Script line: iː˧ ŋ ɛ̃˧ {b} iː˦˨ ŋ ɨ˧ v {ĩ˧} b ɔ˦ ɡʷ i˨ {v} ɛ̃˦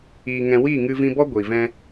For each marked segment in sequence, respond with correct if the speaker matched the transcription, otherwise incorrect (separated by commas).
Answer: incorrect, correct, correct